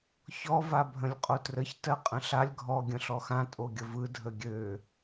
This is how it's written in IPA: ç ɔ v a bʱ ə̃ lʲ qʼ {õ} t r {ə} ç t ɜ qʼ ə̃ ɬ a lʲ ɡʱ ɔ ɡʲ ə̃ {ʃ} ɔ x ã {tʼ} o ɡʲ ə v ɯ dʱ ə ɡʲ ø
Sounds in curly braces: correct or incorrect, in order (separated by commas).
incorrect, correct, incorrect, correct